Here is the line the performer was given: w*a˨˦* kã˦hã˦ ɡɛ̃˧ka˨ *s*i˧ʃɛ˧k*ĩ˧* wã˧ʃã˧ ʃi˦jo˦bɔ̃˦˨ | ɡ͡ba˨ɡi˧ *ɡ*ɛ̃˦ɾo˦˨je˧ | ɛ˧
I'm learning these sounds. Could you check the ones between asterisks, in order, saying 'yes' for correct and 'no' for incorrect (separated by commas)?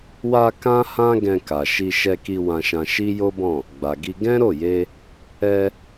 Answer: no, no, no, yes